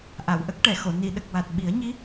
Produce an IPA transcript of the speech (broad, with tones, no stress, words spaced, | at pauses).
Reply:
ʔa˨˩˨wʔə˦˥k̚ʈɛ˨˩˨xo˨˩˨ ni˨˩˨ɗə˨˩k̚wa˨˩t̚ ɓi˨˩˦ə̯ɲi˧˥